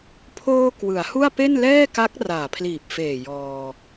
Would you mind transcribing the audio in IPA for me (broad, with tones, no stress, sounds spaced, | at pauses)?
pʰ oː˧ k w ɯ˩˦ a̯ h u˥˩ a̯ p e˥˩ n l ɛː˥˩ k a˦˥ k̚ r aː˨˩ pʰ l iː˨˩ p̚ f eː˨˩ j ɔː˧